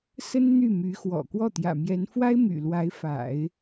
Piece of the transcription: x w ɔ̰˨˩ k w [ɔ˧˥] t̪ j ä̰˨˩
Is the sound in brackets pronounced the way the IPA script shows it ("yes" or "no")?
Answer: no